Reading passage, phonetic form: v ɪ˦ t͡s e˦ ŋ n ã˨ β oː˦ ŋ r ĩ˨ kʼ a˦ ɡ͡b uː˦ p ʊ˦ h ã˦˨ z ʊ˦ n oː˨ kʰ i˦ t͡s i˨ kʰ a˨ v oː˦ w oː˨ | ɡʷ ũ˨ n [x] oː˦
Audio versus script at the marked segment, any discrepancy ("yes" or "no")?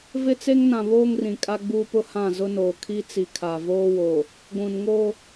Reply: yes